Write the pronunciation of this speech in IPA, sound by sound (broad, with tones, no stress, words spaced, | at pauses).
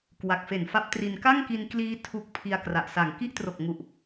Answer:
kwa˨˩k̚ fe˨˩nfa˦˥p̚tri˧n ka˥˩ŋki˧n kliː˦˥ tʰu˨˩k̚ pʰi˧a̯ kra˨˩ʔsa˨˩ŋ ki˦˥ʔtro˨˩k̚ŋu˨˩ʔ